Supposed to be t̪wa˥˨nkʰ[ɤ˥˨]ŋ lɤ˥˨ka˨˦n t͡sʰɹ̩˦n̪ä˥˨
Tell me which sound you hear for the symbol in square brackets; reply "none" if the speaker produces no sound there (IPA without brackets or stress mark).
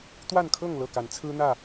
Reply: ɤ˥˨